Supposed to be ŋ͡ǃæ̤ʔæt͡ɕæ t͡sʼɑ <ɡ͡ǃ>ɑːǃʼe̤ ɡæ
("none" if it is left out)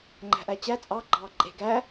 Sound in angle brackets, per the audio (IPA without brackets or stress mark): ɡ͡ǃ